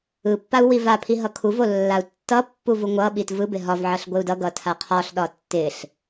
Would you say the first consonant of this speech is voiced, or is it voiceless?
voiceless